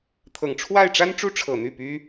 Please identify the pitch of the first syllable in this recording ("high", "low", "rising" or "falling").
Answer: low